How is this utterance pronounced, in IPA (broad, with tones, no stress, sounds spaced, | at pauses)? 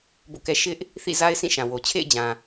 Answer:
b o̰˦˨ k ɛ˦ ʃ ɪ˦ ʔ | θ ḭ˦˨ z a˦ ɪ̯ s ĩ˦˨ ʃ ã˨ w o˨ t͡ɕʰ ḛ˦˨ ɪ̯ d͡ʑ ã˨